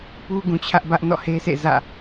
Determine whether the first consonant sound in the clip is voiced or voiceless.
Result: voiceless